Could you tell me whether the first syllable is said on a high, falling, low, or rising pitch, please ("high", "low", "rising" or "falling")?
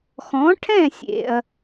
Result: rising